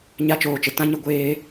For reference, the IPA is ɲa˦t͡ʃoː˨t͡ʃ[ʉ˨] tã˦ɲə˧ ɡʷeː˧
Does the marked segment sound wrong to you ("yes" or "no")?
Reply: yes